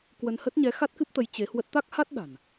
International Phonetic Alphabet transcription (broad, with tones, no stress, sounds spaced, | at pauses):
k w ə˧ n h ə˦˥ t̚ ɲ ɛ˨˦ x a˦˥ t̚ k ɨ˦˥ p̚ t̪ ə˨˦ j t͡ɕ e˨˦ h w ə˦˥ t̚ t̪ a˦˥ k̚ h a˦˥ t̚ ɗ a̤˨˩ n